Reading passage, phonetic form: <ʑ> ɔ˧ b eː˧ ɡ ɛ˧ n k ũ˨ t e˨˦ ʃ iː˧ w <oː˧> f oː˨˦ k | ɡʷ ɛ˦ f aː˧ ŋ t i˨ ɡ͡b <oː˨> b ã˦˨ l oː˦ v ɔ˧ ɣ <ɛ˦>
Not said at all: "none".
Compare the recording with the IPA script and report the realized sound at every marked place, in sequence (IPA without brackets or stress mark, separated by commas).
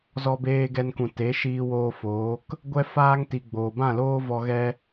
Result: z, oː˧, oː˨, ɛ˦